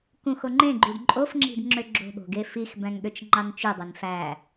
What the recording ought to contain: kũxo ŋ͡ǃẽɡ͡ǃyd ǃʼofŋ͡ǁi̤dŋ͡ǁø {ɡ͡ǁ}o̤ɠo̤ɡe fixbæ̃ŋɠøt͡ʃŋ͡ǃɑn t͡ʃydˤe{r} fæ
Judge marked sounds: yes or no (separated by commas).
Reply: yes, no